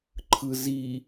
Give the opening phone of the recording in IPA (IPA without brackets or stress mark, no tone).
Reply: ǃʰ